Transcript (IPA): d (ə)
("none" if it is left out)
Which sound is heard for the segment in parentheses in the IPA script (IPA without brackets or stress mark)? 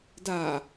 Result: a